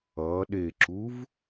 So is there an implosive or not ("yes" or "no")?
yes